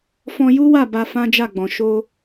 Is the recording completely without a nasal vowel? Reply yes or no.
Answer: no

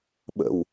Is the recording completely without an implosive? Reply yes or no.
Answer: no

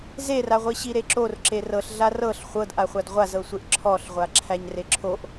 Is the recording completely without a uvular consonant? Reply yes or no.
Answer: no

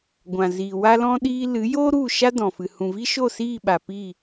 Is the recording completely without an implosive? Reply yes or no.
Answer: no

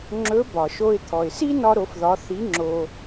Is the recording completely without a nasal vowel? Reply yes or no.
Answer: yes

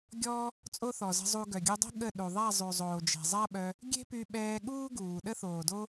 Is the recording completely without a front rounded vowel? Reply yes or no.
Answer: no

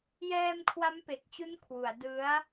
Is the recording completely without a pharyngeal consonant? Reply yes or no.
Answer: yes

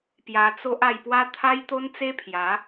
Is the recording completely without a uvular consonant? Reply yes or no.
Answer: yes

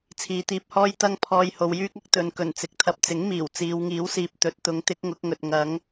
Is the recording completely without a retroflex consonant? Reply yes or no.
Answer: yes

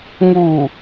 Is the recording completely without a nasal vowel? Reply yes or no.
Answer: yes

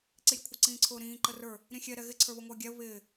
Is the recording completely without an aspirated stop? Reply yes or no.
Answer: no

